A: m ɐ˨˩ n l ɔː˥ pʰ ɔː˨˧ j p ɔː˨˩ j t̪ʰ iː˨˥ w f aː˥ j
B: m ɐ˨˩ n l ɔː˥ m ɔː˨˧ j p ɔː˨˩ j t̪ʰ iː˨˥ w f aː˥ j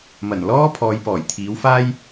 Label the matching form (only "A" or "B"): A